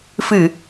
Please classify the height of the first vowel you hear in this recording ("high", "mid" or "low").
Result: high